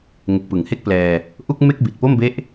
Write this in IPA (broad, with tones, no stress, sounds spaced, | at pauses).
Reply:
ŋ e˨˩ k̚ p ɯ˩˦ ŋ h e˥˩ k̚ p l ɛː˧ | ʔ u˥˩ k̚ m e˥˩ k̚ b i˨˩ t̚ p o˥˩ m b e˦˥ ʔ